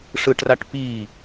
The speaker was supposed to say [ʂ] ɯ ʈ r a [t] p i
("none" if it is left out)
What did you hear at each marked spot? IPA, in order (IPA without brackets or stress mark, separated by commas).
ʂ, ʈ